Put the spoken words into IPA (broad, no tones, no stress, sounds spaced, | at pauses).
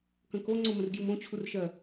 k ə̃ k o ŋ͡ǀ õ m ə̃ r ɡ j u m õ t͡ɕʰ u r ʃ ɜ